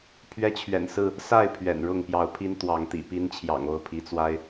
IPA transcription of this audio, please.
pʰ ɥ ɛ˦ t͡ɕʰ ɥ ɛ̰˨˩ n s ɹ̩˥˨ | s a˥˨ ɪ̯ pʰ ɥ ɛ̰˨˩ n ɻ ʊ˥˨ ŋ p j ɑ˨˦ ʊ̯ pʰ i˦ n t̪ w ɑ˨˦ ŋ t̪ ḭ˨˩ p i˦ n t͡ɕʰ j ɑ̰˨˩ ŋ o˥˨ ʊ̯ pʰ i˨˦ t͡s w a˦ ɪ̯

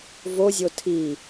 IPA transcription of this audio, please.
v o zʲ o tʰ i

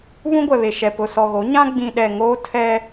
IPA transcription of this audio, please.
β ũ˦ ɡʷ ɛ˨ β e˨ ʃ ɛ˨ p ʊ˨ s ɔ˨ ɣ o˨˦ ɲ ã˦ ɡ͡b ĩ˨ ɗ ɛ˨ ŋ oː˦ tʰ ɛ˦

